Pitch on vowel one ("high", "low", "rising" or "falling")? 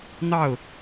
falling